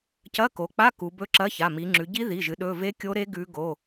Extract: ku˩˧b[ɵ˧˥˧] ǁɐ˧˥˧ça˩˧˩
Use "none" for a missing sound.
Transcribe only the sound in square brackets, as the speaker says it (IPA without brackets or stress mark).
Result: ɵ˦˥